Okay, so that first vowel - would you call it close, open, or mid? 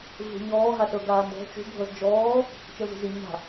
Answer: close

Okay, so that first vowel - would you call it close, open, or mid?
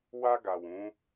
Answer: open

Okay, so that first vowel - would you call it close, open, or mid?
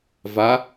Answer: open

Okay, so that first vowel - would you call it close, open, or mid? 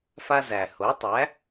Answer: open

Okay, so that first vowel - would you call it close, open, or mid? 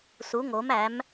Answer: close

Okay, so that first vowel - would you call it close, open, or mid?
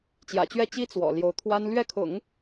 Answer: open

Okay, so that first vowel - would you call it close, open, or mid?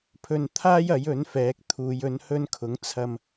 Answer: mid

